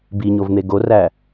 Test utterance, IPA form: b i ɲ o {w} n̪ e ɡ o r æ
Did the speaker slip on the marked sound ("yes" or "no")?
yes